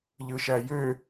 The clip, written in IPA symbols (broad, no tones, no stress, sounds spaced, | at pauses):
ʎ ɯ ʃ æ j ø